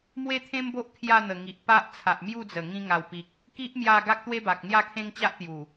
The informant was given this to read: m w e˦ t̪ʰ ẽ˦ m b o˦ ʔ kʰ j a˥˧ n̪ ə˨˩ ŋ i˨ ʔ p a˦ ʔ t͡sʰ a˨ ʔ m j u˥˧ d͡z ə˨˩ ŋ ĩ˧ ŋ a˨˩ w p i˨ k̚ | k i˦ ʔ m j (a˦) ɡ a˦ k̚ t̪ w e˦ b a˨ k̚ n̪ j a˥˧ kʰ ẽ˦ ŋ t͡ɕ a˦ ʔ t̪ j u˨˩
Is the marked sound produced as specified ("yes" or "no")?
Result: no